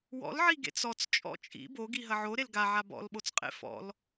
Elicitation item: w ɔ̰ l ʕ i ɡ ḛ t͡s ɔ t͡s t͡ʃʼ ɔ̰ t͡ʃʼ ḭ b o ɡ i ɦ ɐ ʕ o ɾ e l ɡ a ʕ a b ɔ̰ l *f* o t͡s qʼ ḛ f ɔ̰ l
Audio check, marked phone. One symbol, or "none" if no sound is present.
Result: ɓ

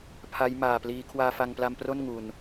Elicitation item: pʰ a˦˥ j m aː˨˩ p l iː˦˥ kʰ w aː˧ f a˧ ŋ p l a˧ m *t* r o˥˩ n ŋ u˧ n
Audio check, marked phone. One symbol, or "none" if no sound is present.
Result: p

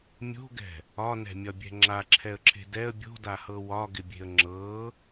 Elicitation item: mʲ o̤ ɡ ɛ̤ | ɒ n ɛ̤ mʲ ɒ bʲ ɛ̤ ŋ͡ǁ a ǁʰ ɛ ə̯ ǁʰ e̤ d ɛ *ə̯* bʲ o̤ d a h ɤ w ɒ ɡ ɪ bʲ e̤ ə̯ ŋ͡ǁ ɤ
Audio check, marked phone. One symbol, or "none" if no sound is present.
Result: ə̯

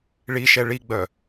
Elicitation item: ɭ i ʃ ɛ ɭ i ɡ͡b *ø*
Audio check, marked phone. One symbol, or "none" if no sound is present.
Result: œ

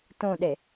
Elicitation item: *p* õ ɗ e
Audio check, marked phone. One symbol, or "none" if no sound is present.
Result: t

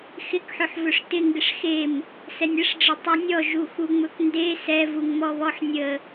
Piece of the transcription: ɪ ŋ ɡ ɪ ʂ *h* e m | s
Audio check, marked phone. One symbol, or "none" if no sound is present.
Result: x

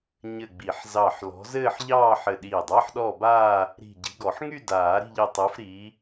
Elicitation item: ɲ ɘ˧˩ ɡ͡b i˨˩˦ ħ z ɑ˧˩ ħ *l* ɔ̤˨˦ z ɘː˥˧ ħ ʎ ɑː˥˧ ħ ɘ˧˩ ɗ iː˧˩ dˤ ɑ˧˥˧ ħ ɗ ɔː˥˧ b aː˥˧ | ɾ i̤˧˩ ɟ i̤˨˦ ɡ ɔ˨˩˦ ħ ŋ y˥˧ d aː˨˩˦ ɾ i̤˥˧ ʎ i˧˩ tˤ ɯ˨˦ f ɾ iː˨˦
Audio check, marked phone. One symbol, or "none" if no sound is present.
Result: l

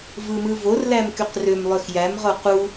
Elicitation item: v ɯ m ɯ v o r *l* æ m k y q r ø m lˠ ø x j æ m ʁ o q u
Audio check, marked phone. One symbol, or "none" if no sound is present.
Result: l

